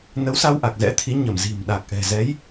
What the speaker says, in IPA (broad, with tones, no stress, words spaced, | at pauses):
nə˨˦wsa˧wʔa˨˩k̚ zɛ̰˧˥t̪ʰi˨˦ ɲə˧˩mzi̤˨˩m ɗa˨˩k̚ʔɛ̤˨˩ zɛ˨˦j